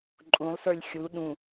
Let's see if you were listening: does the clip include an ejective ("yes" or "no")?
yes